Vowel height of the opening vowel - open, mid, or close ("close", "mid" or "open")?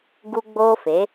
close